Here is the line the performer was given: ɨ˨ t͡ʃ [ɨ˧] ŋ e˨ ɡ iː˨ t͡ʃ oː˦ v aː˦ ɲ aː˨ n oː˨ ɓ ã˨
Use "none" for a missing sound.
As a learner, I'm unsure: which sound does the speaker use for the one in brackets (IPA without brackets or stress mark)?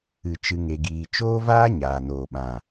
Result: ɨ˨